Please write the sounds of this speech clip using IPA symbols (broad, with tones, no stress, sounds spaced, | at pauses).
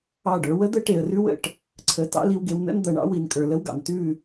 ɑ˦˨ ɖ ə˞˨˦ w ə˦ d̪ ə˦ ʈ e˨ ə̯ r ʉ˦ w ə̰˦˨ ʈ | ǀʰ ə˨ t ɑ̰˦ l i˦ w ɡ e˦ w n ə̰˦ n d̪ ɐ˨ ɳ ɑ̰˦ w i˨ n kʼ ə˞˨ l ə˦ w ɡ ɑ̰˨ n t ʉ˦˨